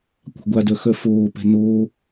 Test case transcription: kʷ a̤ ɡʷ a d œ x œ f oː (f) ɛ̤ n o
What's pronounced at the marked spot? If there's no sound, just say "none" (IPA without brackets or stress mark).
p